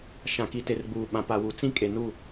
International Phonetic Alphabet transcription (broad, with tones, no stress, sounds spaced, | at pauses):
ʃ ã˨ k i˨ t e˨ r ɡ͡b uː˨ ɓ ã˨ p a˨ w u˨ t͡s ĩ˦ kʼ e˨ n u˦˨